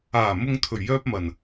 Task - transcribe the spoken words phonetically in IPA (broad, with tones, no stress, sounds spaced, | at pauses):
aː˨˩ m ʊ˨ ŋ t̪ʰ ɵ˨˩ ɥ j œː˧ p̚ m ɐ˨˩ n